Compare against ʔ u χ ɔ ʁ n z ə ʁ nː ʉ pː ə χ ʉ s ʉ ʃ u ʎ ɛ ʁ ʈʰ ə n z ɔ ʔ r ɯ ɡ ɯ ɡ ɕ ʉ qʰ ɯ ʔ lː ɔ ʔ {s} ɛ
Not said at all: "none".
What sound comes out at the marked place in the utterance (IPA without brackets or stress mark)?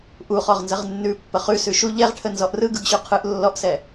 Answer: s